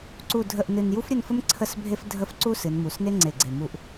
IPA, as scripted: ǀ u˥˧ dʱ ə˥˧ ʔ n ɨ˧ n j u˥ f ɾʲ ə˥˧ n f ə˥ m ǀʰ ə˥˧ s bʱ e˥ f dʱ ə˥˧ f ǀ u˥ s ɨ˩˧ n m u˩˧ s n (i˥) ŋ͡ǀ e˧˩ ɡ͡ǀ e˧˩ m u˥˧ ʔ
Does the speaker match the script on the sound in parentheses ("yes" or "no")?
no